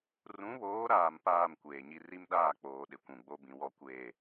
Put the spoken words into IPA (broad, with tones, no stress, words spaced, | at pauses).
rũ˨˦βoː˨˦ɾaː˨m paː˦˨m kʷeː˨ɲi˦ ri˦mɗaː˦˨k͡poː˨ ɗɪ˨kʷũ˨ɡ͡bo˦bĩ˨ wɔ˦kʷeː˦˨